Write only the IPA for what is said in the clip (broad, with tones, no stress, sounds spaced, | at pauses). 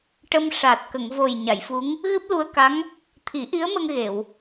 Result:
ʈ ə˧ m ʂ a˨˩ t̚ k ə˨˩˨ ŋ v o˨˩ j ɲ a˨˩˨ j f u˧˥ ŋ | ɣ ɨ˦˥ p̚ l u˧ ə̯ k a˧˥ ŋ | t̪ʰ i˨˩˦ ʔ i˧˥ ə̯ m ə˧ ŋ ɣ e˨˩˨ w